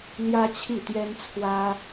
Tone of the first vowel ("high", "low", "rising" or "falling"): high